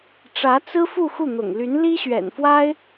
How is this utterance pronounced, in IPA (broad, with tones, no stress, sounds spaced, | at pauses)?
ʈ͡ʂ ä˧˥ t͡s ɹ̩˥ f u˥˧ x u˥˩ n̪ ʊ̰˨˩ ŋ l y˧˥ n l i˥ ɕ ɥ ɛ̰˨˩ n f w a˥ ɪ̯